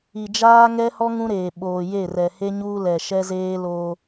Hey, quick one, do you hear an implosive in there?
yes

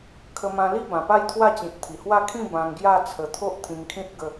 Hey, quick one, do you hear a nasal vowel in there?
yes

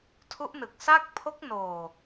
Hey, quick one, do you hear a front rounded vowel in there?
no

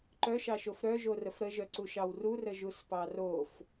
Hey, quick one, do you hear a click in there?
yes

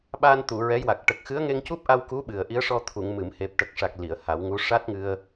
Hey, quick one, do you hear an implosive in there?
yes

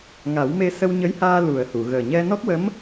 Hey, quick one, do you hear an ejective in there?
no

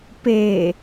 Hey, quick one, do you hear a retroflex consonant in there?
no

